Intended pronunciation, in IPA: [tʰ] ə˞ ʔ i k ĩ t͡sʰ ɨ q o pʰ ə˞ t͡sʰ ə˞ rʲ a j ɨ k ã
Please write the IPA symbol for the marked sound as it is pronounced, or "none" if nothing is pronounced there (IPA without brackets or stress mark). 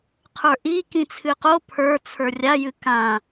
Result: qʰ